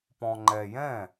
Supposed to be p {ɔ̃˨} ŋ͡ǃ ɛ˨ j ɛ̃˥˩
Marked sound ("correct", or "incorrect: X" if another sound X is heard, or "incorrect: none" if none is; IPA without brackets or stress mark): correct